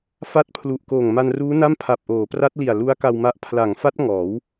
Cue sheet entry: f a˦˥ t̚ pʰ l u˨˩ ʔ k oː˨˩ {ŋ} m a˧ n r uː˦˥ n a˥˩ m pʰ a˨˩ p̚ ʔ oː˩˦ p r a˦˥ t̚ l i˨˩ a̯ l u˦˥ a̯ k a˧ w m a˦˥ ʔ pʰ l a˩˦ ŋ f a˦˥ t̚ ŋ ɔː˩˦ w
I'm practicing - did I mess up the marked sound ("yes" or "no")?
no